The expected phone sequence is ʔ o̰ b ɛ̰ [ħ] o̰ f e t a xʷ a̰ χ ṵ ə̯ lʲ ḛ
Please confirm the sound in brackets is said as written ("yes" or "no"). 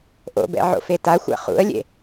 no